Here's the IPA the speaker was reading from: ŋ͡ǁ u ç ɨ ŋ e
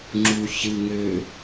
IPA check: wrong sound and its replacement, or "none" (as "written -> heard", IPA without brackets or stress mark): e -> ø